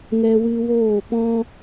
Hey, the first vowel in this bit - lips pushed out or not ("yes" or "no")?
no